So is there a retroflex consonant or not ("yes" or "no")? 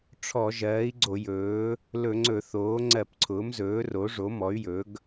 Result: yes